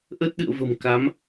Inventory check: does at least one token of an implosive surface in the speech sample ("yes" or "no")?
yes